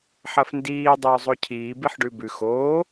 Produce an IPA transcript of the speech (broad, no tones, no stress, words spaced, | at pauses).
ħɐfndiː dˤɵːzˤocʰiː biħɖʉbʉx oː